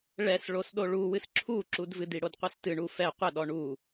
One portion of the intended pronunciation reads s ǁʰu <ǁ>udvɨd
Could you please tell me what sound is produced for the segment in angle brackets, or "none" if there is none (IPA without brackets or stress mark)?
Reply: ǁ